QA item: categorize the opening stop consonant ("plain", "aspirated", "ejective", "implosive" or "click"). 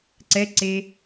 click